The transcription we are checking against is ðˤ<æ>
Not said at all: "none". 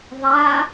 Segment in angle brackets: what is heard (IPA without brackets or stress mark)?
a